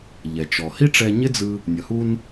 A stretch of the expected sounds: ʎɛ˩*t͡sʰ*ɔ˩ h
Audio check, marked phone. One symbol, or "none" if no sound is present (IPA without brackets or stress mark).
t͡ʃ